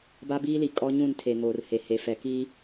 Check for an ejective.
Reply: present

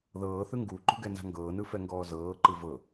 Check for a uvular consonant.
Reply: absent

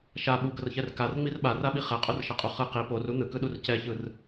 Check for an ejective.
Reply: present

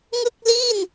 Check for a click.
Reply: absent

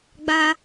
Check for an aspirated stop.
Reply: absent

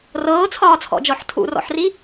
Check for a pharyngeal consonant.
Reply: present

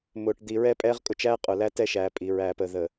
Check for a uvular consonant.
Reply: present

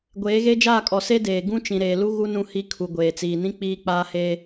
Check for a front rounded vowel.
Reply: absent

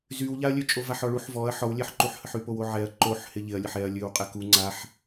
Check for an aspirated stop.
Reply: absent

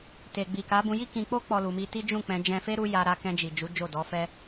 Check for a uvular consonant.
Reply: absent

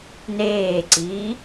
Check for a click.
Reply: present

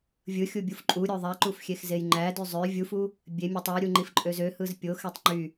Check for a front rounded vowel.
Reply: present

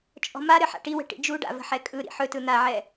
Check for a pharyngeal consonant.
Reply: present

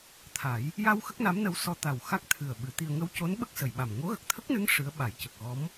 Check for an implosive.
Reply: present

